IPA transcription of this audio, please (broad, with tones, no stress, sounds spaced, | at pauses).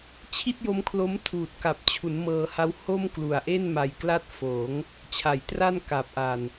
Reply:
t͡ɕʰ i˥˩ t̚ j o˦˥ m kʰ l o˦˥ m tʰ uː˨˩ t̚ k a˨˩ p̚ t͡ɕʰ u˩˦ n m ɤː˧ h a˦˥ w h o˥˩ m k l u˨˩ a̯ ʔ e˥˩ n m a˧ j k l a˥˩ t̚ f oː˩˦ ŋ | t͡ɕʰ a˨˩ j t r a˥˩ n k aː˨˩ p̚ ʔ a˨˩ n